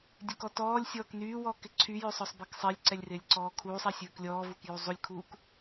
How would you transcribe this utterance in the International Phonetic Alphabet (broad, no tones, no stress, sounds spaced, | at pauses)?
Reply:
dʲ ø k ɔ t ɔː lʲ sʲ ɔː k n yː w ɔː k ɪ ǀʰ y j ø sˤ ɔ sˤ b ɛ k sˤ ɪː lʲ ǀ ɛ lʲ r ɪː lʲ ǀ ɔː kʰ uː sˤ ɛ sʲ ɵː k lʲ ɔː v u k j u zˤ u lʲ kʰ uː k